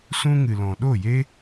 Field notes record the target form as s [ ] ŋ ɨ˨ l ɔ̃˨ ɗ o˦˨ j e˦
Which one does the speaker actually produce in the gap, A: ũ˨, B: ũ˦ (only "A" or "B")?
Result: B